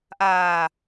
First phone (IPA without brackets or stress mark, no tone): ʔ